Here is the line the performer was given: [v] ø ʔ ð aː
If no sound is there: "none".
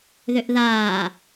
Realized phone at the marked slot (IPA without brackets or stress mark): ð